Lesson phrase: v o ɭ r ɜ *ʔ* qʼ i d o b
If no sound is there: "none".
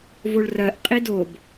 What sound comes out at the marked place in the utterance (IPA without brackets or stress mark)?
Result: ʔ